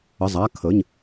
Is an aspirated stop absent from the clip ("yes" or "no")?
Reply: no